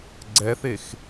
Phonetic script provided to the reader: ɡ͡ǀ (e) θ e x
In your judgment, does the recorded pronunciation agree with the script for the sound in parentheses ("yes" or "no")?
no